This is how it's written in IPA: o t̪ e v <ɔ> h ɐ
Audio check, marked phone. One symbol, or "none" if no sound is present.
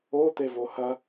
o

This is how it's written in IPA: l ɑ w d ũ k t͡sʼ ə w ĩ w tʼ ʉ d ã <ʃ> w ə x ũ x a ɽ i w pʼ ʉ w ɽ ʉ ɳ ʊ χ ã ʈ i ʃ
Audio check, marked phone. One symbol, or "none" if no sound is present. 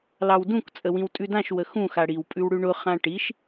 ʃ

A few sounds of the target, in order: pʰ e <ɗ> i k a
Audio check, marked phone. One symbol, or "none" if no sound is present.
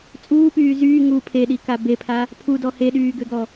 ɗ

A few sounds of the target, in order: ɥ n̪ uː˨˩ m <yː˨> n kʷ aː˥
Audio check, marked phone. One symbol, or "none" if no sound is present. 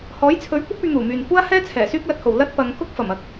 yː˨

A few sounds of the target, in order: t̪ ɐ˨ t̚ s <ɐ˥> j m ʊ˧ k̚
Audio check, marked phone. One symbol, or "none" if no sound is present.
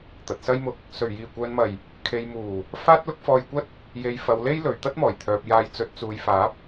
ɐ˥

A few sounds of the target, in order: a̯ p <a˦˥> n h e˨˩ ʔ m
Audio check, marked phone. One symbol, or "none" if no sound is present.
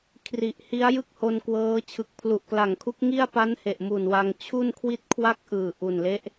a˦˥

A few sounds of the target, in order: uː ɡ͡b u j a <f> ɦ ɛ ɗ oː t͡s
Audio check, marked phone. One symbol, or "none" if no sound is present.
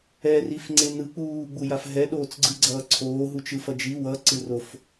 f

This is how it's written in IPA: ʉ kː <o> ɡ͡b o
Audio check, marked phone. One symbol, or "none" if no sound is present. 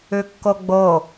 o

